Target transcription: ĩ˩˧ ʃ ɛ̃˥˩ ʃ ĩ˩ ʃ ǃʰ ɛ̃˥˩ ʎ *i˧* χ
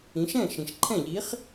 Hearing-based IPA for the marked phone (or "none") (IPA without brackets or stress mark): i˨˥